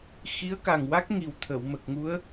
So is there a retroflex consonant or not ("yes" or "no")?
no